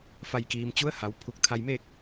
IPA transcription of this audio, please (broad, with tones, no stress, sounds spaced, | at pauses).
f a˧˩ j k iː˩ m t͡ɕ u˧˥ ə̯ h a˩˧ w pʰ u˧˩ k̚ t̪ʰ a˧ j m e˥˨ k̚